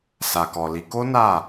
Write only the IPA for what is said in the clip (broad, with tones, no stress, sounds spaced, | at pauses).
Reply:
s a˨ k ɔ˨ l i˨˦ k o˦ n a˦˨